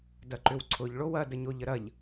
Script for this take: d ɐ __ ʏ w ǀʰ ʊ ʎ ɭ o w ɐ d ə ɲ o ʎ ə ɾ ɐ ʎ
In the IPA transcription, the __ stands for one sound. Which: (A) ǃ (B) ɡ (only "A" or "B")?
A